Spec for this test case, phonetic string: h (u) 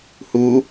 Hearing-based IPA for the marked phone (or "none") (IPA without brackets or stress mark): u